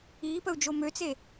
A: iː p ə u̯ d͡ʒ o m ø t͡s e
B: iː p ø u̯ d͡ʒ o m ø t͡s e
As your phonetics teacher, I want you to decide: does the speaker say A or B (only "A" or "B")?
A